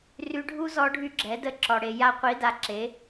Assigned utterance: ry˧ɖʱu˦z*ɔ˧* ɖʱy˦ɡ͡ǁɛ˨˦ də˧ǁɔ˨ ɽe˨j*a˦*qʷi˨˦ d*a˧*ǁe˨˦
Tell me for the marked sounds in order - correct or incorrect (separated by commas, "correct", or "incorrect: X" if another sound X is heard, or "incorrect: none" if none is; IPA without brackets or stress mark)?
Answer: correct, incorrect: a˧, correct